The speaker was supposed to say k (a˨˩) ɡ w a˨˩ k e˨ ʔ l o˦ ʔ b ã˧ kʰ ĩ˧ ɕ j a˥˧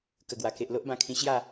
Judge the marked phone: incorrect: ə˨˩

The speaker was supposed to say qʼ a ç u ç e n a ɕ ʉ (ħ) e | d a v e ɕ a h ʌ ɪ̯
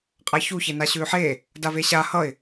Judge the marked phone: correct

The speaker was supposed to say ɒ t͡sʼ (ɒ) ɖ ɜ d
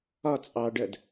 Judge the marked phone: incorrect: ɑ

